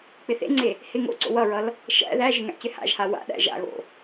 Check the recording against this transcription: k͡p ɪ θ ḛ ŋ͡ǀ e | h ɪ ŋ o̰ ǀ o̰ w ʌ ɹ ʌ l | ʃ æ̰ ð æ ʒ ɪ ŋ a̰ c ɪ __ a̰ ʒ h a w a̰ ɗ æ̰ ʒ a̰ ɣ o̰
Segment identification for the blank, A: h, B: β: A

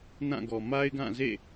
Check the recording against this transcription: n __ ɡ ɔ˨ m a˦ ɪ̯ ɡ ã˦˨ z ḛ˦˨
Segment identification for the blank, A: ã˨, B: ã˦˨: B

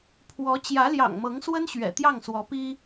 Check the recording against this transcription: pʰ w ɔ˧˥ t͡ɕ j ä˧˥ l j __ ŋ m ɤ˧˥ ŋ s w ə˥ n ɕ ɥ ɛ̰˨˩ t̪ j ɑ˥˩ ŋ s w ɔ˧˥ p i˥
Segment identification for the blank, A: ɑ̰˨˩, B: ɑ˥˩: A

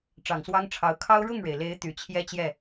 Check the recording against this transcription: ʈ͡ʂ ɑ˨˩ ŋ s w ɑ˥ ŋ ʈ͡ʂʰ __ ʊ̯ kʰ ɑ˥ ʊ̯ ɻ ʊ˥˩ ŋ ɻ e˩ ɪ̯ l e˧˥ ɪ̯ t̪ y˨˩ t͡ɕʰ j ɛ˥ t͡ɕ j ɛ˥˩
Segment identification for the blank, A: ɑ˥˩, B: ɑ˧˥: B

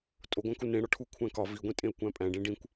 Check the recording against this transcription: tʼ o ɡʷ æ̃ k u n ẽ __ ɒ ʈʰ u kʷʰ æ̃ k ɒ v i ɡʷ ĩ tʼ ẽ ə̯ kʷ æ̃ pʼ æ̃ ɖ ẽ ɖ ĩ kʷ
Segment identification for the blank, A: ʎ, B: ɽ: B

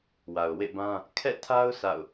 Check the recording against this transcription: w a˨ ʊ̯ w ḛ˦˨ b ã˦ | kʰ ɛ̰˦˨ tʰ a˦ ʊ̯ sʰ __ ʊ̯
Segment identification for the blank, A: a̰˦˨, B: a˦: A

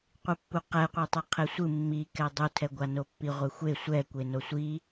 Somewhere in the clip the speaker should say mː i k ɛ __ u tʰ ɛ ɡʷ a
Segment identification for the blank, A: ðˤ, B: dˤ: B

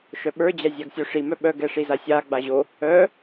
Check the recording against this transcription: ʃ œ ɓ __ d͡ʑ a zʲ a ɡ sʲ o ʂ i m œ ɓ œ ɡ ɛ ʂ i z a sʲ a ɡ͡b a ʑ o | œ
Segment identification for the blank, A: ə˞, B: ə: A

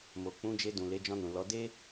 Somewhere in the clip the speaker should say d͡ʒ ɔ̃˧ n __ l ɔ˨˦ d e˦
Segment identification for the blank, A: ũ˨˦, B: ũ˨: B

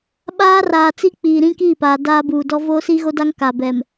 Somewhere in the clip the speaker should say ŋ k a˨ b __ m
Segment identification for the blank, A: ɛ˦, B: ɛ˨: B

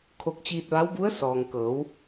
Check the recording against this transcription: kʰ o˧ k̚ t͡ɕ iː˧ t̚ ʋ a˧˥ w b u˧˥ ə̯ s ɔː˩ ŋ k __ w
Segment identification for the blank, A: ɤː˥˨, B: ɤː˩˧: B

